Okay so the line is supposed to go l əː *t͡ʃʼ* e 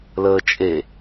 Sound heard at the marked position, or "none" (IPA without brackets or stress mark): t͡ʃʼ